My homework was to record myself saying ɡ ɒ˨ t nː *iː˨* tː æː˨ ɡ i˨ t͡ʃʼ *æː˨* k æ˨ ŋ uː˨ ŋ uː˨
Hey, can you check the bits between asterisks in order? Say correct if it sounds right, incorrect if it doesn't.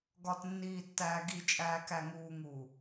correct, correct

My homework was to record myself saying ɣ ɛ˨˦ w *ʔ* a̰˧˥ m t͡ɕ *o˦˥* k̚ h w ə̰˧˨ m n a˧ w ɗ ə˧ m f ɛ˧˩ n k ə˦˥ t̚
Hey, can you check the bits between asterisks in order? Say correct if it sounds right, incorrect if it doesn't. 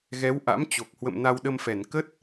correct, incorrect: o˨˩

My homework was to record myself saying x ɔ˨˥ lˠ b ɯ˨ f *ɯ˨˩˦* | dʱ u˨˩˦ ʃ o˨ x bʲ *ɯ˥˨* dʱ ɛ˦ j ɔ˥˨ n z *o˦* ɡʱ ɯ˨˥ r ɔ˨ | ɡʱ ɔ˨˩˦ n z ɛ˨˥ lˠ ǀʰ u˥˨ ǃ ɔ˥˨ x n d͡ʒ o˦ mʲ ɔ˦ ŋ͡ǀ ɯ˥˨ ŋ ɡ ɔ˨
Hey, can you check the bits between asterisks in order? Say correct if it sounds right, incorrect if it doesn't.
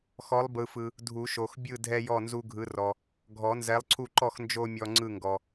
incorrect: ɯ˨, correct, incorrect: u˦

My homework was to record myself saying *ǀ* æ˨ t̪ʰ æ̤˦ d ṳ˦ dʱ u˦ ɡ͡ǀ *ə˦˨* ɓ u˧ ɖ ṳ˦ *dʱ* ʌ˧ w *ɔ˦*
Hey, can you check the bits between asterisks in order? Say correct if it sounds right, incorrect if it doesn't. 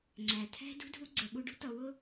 incorrect: ŋ͡ǀ, incorrect: ə˧, incorrect: t̪, incorrect: ʊ˦

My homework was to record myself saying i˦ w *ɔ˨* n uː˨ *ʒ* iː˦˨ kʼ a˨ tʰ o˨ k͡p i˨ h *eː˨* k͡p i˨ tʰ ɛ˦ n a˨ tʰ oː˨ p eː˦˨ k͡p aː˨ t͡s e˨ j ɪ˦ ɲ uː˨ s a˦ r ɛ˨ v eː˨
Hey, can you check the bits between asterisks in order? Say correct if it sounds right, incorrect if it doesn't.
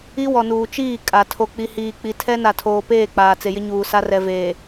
correct, incorrect: t͡ʃ, incorrect: iː˨

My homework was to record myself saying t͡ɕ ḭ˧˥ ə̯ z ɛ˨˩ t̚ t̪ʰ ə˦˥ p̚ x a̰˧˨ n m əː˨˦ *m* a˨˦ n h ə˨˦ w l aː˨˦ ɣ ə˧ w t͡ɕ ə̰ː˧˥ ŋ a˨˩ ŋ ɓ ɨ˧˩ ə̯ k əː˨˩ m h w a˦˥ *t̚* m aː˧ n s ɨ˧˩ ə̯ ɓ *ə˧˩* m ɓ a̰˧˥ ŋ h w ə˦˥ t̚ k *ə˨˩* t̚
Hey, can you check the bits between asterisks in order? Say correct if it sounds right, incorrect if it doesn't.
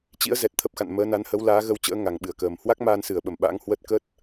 incorrect: n, incorrect: k̚, correct, incorrect: ə˦˥

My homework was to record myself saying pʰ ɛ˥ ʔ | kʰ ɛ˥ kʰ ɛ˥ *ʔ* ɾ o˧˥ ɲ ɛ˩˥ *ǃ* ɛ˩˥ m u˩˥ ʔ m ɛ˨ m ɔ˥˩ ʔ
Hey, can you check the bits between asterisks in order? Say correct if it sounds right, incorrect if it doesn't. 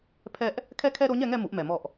incorrect: none, incorrect: ŋ

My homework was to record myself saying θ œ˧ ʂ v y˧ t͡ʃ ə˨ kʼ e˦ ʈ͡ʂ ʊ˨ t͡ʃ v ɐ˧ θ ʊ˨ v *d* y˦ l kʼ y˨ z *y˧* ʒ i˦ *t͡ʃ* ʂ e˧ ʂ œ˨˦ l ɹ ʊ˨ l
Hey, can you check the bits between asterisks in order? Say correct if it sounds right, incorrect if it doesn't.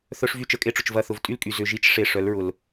incorrect: tʼ, incorrect: ʏ˧, correct

